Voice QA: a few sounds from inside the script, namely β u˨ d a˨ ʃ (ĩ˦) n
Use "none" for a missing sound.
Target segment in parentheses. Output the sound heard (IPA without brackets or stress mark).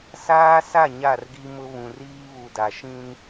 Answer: ĩ˦